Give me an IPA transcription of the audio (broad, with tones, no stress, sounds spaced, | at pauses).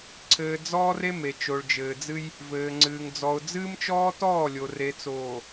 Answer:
ǀʰ ɘː˨ d͡z ɔː˦ r e˦ m e˨ t͡ʃ o˨ ɭ d͡ʒ ɘː˨ d͡z ɨ˦ j | v ɘː˨ ŋ͡ǀ ɨː˨ ŋ d͡z ɔ˨ ʊ̯ d͡z ɨː˦ m t͡ʃ ɔː˦ t ɔː˦˨ lʲ o˨ r e˨ t͡s oː˨